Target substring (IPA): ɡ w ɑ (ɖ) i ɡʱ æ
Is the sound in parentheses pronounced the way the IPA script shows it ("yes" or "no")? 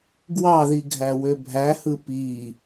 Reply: no